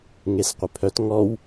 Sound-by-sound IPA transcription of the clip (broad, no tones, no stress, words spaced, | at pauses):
ŋesqʷɪpʰœt ŋɔw